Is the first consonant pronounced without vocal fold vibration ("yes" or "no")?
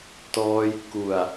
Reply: yes